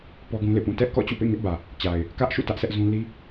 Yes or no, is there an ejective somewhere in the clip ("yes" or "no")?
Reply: no